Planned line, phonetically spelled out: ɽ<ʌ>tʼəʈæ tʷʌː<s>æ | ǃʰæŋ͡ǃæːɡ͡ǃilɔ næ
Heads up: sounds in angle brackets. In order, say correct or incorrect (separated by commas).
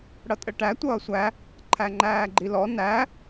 correct, incorrect